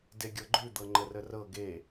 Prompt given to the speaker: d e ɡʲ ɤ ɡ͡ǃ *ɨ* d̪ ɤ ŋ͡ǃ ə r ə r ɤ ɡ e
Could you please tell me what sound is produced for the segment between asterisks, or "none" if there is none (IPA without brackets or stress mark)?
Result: ʉ